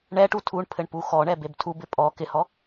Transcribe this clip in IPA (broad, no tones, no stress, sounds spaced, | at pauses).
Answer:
ɳ ɛ ʈ u tʰ u ɳ pʰ ɘ ɳ p u x ɔ ɳ ɛ b e b tʰ u b ɪ pʼ ɔ k ɪ h ɔ